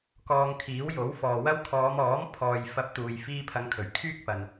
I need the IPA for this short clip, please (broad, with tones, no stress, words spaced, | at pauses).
kɔː˧ŋkʰiː˨˥wjo˨˥w fɔː˨wɐ˥w kʰɔː˨˧mɔː˨˥mpʰɔː˨jfɐ˨˥p̚ t̪uː˨j fiː˧pʰɐ˨˧ŋkʰɵ˨˩ɥ kʰyː˥k̚pɐ˨n